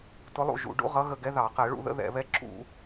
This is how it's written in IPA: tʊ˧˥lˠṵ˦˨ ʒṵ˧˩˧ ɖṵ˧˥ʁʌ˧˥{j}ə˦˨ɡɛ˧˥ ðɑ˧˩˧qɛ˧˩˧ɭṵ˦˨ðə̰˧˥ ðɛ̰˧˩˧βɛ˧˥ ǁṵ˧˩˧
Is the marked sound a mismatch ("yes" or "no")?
yes